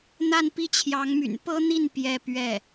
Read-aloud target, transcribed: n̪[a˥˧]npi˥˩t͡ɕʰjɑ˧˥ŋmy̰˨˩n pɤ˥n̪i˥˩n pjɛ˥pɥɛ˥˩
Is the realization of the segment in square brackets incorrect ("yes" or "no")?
no